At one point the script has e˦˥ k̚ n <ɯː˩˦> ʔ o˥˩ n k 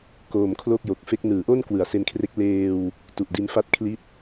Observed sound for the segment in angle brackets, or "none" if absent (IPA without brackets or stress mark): ɯː˩˦